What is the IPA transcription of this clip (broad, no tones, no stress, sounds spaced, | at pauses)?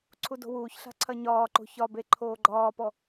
ǀʰ u d o̤ w uː ç ɬ a̤ ǀʰ ɐ ɲ ɒː ǃ o̤ ç ɒ b e ǃʰ oː ɡ͡ǃ ɒː p ɔ